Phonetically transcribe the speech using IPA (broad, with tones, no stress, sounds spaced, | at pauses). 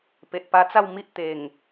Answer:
p e˨ ʔ p a˧ t͡s a˥˧ w m i˦ ʔ t̪ e˨˩ ŋ